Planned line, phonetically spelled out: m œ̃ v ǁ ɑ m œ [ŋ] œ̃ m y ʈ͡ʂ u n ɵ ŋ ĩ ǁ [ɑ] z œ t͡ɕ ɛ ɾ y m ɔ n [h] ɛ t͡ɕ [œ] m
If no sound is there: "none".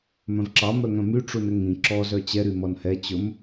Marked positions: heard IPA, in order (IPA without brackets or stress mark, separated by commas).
ŋ, ɔ, h, ɵ